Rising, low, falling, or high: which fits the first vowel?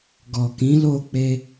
low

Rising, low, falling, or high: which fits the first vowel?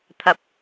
high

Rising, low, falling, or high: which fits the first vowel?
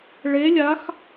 rising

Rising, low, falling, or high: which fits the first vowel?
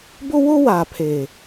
high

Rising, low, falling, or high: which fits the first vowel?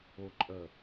low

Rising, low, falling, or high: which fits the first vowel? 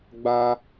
high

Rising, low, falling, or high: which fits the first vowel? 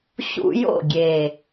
high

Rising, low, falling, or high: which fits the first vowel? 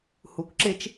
low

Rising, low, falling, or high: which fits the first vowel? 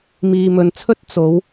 low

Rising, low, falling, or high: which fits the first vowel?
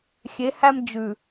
rising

